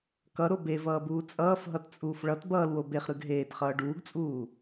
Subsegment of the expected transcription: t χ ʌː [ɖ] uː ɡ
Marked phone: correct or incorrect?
correct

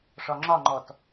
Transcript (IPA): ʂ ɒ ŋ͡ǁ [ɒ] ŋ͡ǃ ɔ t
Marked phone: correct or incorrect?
correct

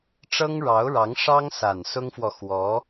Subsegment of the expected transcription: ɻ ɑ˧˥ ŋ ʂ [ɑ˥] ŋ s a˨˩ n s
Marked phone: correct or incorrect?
correct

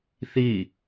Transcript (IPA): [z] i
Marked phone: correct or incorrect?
incorrect: θ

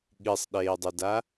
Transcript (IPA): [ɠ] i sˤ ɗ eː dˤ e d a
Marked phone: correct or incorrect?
correct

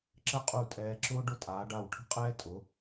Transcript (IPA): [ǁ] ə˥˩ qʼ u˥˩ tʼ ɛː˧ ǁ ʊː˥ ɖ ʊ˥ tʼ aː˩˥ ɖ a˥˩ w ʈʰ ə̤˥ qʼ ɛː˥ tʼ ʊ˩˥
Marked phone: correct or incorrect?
correct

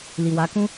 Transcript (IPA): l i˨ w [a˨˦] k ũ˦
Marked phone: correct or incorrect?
correct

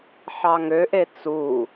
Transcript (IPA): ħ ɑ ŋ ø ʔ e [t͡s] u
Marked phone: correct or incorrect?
correct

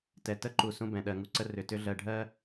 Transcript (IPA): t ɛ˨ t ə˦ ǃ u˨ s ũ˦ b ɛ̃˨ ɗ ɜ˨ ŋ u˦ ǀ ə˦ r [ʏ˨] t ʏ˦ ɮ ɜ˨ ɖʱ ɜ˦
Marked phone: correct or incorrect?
correct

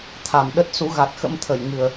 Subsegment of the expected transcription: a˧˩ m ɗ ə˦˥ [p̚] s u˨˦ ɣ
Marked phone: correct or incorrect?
incorrect: t̚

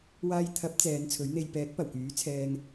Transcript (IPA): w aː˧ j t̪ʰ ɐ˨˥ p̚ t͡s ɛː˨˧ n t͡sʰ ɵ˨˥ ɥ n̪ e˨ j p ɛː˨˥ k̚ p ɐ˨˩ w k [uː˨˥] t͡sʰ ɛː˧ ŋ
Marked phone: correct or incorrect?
incorrect: yː˨˥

